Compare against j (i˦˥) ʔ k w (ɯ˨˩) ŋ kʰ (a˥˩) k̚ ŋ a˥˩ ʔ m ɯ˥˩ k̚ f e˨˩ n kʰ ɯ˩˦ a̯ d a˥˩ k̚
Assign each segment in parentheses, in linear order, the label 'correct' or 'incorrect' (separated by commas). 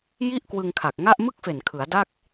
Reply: incorrect, incorrect, incorrect